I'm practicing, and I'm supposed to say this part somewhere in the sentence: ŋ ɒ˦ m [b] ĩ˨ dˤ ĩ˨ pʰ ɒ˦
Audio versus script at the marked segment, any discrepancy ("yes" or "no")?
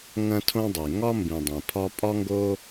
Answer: no